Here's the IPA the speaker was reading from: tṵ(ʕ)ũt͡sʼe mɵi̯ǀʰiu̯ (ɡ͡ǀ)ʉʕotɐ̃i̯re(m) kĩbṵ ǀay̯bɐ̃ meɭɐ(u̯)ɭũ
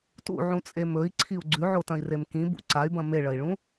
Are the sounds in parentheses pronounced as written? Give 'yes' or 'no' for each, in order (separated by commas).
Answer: yes, yes, yes, no